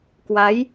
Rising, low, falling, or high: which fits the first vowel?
rising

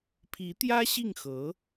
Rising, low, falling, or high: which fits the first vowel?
rising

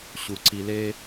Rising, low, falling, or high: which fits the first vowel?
low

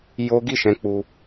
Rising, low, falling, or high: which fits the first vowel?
high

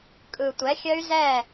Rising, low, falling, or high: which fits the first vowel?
low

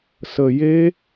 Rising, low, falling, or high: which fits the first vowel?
low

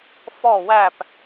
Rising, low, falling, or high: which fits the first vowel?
falling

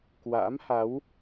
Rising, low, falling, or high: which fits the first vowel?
rising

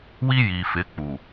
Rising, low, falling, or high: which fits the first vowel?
high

